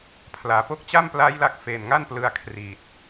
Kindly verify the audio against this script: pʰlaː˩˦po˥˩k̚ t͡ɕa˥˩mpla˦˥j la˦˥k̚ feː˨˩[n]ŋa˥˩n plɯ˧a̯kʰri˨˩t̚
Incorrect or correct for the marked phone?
correct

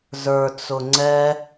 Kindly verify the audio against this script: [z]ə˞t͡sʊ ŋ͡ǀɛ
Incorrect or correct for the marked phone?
correct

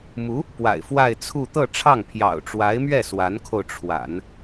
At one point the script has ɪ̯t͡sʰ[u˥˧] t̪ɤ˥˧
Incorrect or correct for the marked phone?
correct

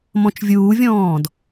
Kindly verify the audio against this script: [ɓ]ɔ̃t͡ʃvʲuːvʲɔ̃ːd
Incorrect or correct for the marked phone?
incorrect: m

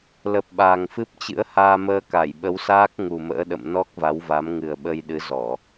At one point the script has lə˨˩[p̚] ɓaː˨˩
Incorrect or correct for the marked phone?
correct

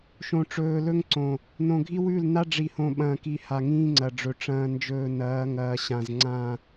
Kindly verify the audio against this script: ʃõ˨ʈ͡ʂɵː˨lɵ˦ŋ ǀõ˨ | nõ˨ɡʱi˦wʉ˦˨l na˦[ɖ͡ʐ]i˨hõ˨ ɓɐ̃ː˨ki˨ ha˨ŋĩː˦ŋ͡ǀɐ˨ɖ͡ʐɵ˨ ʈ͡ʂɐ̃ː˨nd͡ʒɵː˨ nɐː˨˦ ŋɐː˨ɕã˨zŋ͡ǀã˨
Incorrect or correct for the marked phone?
correct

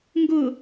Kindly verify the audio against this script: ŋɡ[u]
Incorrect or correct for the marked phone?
incorrect: ʊ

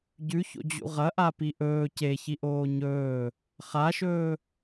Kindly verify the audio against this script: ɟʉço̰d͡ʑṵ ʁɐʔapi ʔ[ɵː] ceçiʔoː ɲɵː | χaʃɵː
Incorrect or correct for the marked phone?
correct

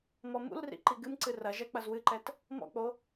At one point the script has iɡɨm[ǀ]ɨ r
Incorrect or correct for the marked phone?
correct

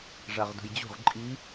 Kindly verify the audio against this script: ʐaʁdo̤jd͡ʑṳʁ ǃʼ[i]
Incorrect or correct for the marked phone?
correct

